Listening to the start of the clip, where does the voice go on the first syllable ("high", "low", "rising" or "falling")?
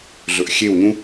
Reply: low